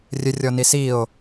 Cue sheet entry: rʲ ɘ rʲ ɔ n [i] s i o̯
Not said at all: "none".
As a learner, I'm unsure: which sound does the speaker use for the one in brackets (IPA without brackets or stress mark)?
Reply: i